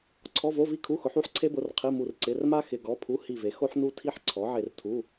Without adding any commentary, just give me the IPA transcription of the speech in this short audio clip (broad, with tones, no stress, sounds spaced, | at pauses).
ǀʰ ɔ˧˥˧ v o˧˥˧ v i˥ kʰ u˧˥˧ x ʊ˨˥ ħ u˥ ħ ǀʰ e˥ b ʊ˧˥˧ r qʰ i˧˥˧ m u˦˨ r ǀ ɪ˧˥˧ r m a˥ x ɪ˧˥˧ ɡ ɔ˧˥˧ pʰ u˧˥˧ h i˦˨ v e˨˥ x o˥ ħ n u˥ tʰ i˥ ħ ǀʰ ɔ˨˥ ʕ e˦˨ r tʰ u˧˥˧